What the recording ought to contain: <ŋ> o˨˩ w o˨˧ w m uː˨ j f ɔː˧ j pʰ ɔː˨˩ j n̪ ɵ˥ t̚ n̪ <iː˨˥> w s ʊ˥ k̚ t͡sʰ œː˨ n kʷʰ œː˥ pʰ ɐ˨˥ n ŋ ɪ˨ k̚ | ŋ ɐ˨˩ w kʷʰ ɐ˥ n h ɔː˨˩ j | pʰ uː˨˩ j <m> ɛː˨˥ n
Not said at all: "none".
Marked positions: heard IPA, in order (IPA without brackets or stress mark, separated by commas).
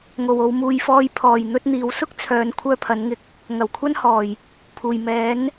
ŋ, iː˨˥, m